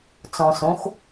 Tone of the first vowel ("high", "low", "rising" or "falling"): low